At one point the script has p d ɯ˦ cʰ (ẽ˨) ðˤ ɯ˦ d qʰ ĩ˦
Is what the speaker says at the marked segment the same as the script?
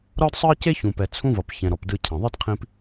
yes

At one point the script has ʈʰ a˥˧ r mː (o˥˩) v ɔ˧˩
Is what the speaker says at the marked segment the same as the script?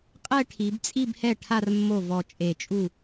yes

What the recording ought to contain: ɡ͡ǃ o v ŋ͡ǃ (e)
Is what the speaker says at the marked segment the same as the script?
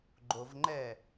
no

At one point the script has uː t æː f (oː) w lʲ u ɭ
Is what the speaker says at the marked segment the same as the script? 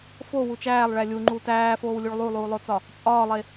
yes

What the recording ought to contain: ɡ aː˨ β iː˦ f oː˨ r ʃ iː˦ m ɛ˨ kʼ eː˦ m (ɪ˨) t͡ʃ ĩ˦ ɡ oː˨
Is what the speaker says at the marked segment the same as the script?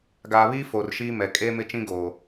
no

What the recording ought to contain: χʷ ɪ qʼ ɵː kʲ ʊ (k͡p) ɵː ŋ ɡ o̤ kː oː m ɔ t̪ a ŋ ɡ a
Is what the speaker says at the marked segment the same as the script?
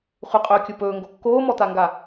no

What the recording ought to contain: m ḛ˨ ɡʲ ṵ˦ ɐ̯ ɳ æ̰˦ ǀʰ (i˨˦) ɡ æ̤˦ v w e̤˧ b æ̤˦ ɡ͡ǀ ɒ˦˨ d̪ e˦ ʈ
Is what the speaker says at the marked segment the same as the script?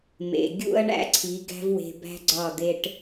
yes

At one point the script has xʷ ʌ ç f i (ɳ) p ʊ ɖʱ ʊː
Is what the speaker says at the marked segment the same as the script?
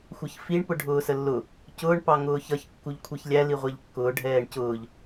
yes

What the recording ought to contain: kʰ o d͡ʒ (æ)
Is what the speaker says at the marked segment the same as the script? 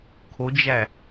yes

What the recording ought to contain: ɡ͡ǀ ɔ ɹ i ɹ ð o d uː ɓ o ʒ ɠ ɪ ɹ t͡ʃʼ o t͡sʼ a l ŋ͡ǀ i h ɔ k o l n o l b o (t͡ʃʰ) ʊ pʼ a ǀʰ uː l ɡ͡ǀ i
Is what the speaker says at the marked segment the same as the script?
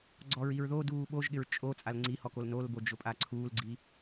no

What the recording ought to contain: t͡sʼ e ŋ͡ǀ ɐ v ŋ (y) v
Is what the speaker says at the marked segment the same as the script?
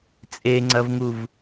no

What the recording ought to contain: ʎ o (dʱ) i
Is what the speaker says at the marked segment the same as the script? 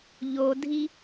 yes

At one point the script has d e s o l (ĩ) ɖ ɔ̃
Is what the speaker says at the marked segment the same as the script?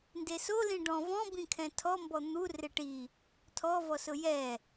yes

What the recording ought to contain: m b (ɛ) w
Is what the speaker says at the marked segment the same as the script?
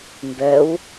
no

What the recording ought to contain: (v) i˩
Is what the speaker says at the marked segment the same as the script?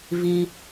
yes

